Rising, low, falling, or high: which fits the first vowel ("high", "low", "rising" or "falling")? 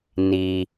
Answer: low